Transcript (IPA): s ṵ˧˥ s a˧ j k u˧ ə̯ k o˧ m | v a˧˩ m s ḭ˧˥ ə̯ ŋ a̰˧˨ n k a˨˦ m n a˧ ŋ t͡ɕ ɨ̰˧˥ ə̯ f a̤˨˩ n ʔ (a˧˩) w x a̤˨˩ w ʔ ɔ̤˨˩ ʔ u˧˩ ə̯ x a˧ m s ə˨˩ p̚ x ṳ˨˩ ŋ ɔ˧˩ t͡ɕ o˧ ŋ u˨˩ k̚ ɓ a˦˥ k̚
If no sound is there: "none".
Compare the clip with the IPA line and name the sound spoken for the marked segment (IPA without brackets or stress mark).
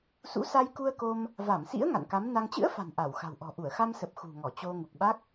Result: a˧˩